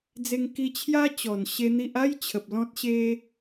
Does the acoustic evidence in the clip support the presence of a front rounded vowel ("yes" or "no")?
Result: no